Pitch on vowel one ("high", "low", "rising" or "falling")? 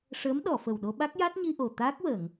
rising